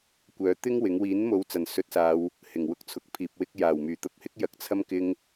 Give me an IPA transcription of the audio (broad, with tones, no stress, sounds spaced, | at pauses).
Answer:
kʷ œː˨˥ t̪ ɪ˥ ŋ w ɪ˨˥ ŋ w iː˨˥ n m o˨˧ w t͡s ɐ˨˩ n s ɵ˨˥ t̚ s aː˨˧ w | h ɪ˨˩ ŋ w ʊ˧ k̚ t͡sʰ ʊ˨ k̚ pʰ iː˨ p̚ w ɪ˧ k̚ j aː˨˩ w m yː˨˩ t̪ ɐ˧ p̚ h ɪ˥ k̚ j ɐ˨˥ k̚ t͡sʰ ɐ˥ m k ɪ˧ ŋ